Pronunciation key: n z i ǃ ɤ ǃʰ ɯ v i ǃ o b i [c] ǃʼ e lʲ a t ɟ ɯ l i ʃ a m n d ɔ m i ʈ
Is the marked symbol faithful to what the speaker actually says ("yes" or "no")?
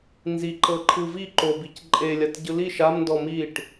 yes